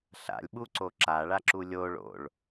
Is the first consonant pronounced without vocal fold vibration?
yes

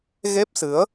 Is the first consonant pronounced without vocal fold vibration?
no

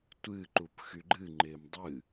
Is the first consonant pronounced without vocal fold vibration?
yes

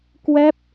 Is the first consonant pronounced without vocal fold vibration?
yes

